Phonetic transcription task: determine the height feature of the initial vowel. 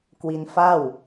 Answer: high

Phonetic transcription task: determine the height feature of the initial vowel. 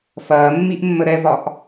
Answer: low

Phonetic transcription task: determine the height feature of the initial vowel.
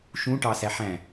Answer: high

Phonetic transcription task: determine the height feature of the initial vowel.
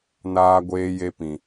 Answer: low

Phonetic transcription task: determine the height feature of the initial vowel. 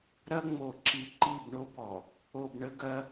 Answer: low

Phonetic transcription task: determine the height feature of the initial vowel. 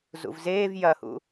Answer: high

